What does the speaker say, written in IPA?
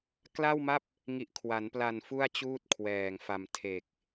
k l a˥˩ w m a˥˩ p̚ | ŋ i˨˩ ʔ kʰ w a˩˦ n p l a˨˩ n f u˥˩ a̯ t͡ɕ uː˥˩ t̚ kʰ w ɛː˨˩ ŋ f a˨˩ m tʰ e˨˩ k̚

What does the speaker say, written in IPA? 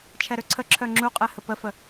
t͡ʃʰ ɛ ɾ ø ǀʰ ə ǁʰ œ ŋ͡ǁ u qʼ ɛ h ə p ə f ə

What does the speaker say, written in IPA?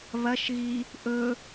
β ɐ ʃ ɣ i | ʔ ɵ

